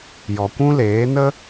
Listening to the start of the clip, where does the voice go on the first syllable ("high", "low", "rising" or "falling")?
low